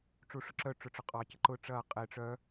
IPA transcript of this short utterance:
ʈ͡ʂ u ʂ ʊ ǁ œ ʈ͡ʂ ʊ ʈ͡ʂ ʊ qʼ ɑ c ə ǃ ʊ ʈ͡ʂ ɐː qʼ e ʈ͡ʂ œ

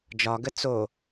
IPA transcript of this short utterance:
d͡ʒ ɒ ɡ ə t͡s o

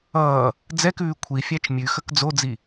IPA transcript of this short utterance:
ʌː | d͡z ɛ k ʉː kʷʰ i fʲ æ t͡ʃ mʲ ʉ x ə k d͡z o d͡z i

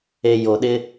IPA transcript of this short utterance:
e˨ j o˨ ɗ ɪ˦

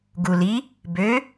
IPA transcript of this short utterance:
ɡ u l i | b ø

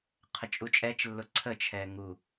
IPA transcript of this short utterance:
qʰ ə t͡ʃʼ u t͡ʃʼ ɛ t͡ʃ lː ʊ ǀʰ ə t͡ʃʰ ɛː ŋ u

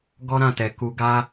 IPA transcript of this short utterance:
ɡ ɔ˦ ɾ ã˦˨ t ɛ˨ k u˧ ɡ a˧

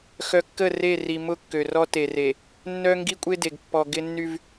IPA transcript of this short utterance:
x œ˨ kː ə˦˨ r e˦˨ r i˨ m ʊ˦ kː ø˨ r ɔ˦ t e˨ r e˨ | nː œ˦ ŋ ɡ i˦ kʷʼ e˦ d e˨ ɡ pː ɔ˨ ɡ ɪ˦ nː y˦ v

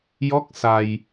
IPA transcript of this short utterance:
j ɔ˦˥ k̚ s a˧ j

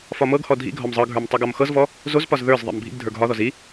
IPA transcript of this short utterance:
f ɒ m ɤ ɡ h ɔ dʱ ḭ ɡʱ ɒ m zˤ ɤ ɡʱ ə˞ m tˤ o ɡ ɒ m x ɤ z v ɔ | z o z p ɒ z ð ə˞ z ðˤ ḭ m bʱ ḭ ɡ dʱ ə˞ ɡ ɦ ɒ ð ɔ z i

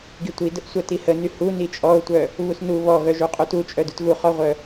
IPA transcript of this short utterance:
ɡ i tʷ i d ə ʔ sʷ œ t i h ə n y h u n i t͡ʃʼ ɔ ʊ̯ tʷ œ | β u s n u β ɔ ɣ œ ʒ u qʼ u t u t͡ʃʼ œ d u t ɣ u χ ɔ ʁʷ œ

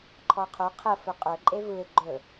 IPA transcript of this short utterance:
ǃʰ ɔ qʰ o qʰ ə f ɵ qʼ ɵ ǃʼ e v ɯ ɪ̯ ɡ͡ǃ ɵ

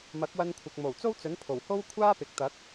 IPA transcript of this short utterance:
m ɐ˨˥ k̚ w ɐ˧ n kʷʰ ɪ˨ k̚ m o˨˩ w t͡s o˥ w t͡s ɵ˨˥ n pʰ o˨˩ w h o˥ w kʷʰ aː˥ p ɪ˨ k̚ t̪ ɐ˨˥ k̚

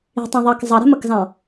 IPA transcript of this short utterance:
i̤ tˤ ɑ̃ ðˤ ɑ k zˤ ɑ ɾ e̤ m ə k z ɑ̃

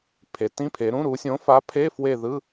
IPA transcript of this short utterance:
pʰ e˩˧ t ĩ˧˥˧ pʰ e˩˧ ɾ ũ˧˥˧ ɾ u˩˧ sʲ õ˨˥ f a˨˥ pʰ e˧˥˧ f w e˦˨ ð ɯ˧˥˧

